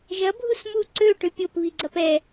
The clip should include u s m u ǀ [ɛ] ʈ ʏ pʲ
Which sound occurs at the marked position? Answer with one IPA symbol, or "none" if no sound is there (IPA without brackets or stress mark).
ø